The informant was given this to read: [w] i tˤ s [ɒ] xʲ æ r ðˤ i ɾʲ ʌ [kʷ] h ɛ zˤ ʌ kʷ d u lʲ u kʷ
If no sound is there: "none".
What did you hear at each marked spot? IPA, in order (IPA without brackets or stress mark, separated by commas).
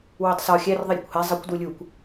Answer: w, ɒ, kʷ